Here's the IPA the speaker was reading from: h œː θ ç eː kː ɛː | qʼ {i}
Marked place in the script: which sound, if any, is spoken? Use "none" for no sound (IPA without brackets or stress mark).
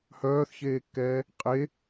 e